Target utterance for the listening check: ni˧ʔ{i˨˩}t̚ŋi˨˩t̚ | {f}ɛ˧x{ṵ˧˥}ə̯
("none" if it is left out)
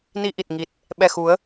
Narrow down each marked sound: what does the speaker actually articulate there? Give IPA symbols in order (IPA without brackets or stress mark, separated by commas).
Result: i˨˩, ɓ, u˨˦